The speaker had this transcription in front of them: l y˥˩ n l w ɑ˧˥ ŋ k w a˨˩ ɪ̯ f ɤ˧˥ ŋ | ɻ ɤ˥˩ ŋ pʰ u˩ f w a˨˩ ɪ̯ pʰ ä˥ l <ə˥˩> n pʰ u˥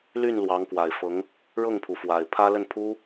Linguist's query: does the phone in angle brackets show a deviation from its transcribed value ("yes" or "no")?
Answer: no